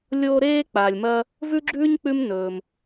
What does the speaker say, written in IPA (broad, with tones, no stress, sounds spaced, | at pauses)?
lʲ oː˦ ɾ eː˥ k͡p aː˩ lʲ m ɐː˦ | v ʉ˥ ɡ͡ǁ ʉː˥ ɲ k͡p ʉ˦ m n ɵː˩ m